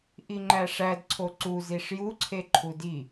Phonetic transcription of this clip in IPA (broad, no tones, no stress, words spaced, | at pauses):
ʔiŋ͡ǃæʂæd ǀʰoǀuziʂ juǀʰeǃʰu di